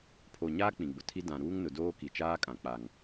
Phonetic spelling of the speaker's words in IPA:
pʰ o˨ ɲ aː˦ k͡p ĩ˨ ɡ͡b ʊ˨ tʰ i˦ d ã˨ ɾ uː˦ ŋ n ʊ˨ d oː˦ k i˨ t͡ʃ aː˦ kʼ ã˨ k͡p a˨ ŋ

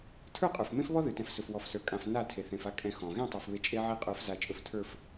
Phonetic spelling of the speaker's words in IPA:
tʰ ə˞˦˨ qʼ ə˞˨ f m ẽ˦ f β ɔ˦ ð ɨ˨ t ɛ̃˨˦ f s ɵ˨ f w ɔ˨ f s ə˞˨ kʼ ã˨ f n a˦˨ tʰ e˨ θ ẽ˨ f a˦ kʼ ɛ̃˨ x ɔ̃˨ ɣ ẽ˦˨ tˤ a˨ f β e˨ t͡ʃʼ e˦ ʕ e˦ qʼ ə˞˨˦ f z a˨ t͡ʃʼ ɵ˨ f tʰ ə˞˨ f

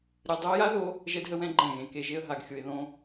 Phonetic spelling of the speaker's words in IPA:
ɾʲ ɯ˨ dˤ ʊ˧ ə̯ j a˦ ð o˧ | ʒ ɛ˦ d ɦ ə˦ w ɛ̃˦ ɡ͡ǃ ɛ̃˦˨ ɣ ẽ˨ k e˨ ʒ e˦ ə̯ ɦ a˧ ɡ xʲ ʊ˧ ɪ̯ ð õ˦

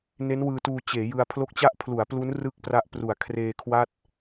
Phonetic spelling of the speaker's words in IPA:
n e˦˥ n w ɯː˧ t uː˧ t͡ɕ eː˩˦ j ɯ˧ a̯ pʰ l o˦˥ k̚ t͡ɕ a˦˥ ʔ pʰ l u˩˦ a̯ p l u˦˥ n r ɯ˦˥ k̚ p r a˦˥ ʔ p r u˩˦ a̯ kʰ r eː˧ kʰ w a˥˩ t̚

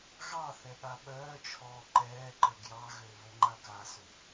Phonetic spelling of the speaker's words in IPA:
ɣ ɑ θ ɛ ɠ a ɓ œː t͡ʃʰ ɔː ǃ ɛː ǃ ə ɡ j ɑ ɣ ø β ə ŋ͡ǃ a k a s ø

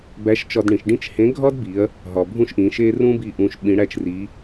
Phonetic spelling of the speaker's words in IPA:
b æ˧˥ ʃ t͡ʃ ɒ˧ d ɳ ĩ˩˧ ʃ ɖ ĩ˥ t͡ʃ h ẽ˧˥ ɡʱ ɒ˥ d b i˩˧ ɐ̯ | ɦ ɒ˩ bʱ ũ˥ ʃ ʔ ĩ˩˧ ʃ e˥ r ũ˥ b i˧ ʔ ũ˧ ʃ ɓ ĩ˧˥ ɽ æ˥ t͡ʃ r i˧˥

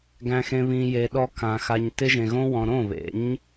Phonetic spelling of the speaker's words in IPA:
ɡ æ̃˧ x ẽ˧ β ĩ˨ j e˨ ɗ ɔ˧ k ã˨ x a˧ ɲ t ɪ˧ ʒ ẽ˨ ɣ õ˧ w ɔ̃˨ ɾ õ˦˨ β ḛ˨˦ ɲ

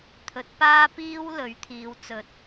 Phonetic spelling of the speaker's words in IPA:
t̪ʰ ɵ˨˥ t̚ p aː˥ p iː˥ w l ɵ˨˥ ɥ t̪ʰ iː˨˧ w t͡s ɵ˨˥ t̚

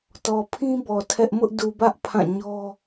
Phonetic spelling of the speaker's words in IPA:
t ɔ˨ pʰ ĩ˦ b ɔ˨ tʰ ɛ˦ ʔ m ʊ˦ ʔ d u˨ b ä˦ ʔ pʰ ã˦˨ ɲ ɔ˦

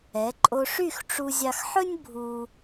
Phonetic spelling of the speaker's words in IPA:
ɛ˩˧ ǃʼ o˧ ʂ y˥˧ x ʈ͡ʂ u˧ zʲ ɑ˧ x ħ ɵ˥ nʲ bʱ u˧

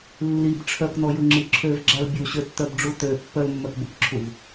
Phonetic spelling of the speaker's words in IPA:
lː i b ʈ͡ʂʰ œ k n ɔ j ʊ ŋ͡ǁ i ǁʰ ø v ɡ͡ǁ a l bʲ u ɕ ø tː œ b ɖ͡ʐ u t ø pː œ l mː œ k b ʊ k ǁʰ u v

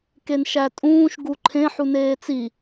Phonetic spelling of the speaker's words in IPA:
k e n ʃ æ tʼ ũː ʃ ɡ u ǃʰ ẽ ħ u n eː t͡s i

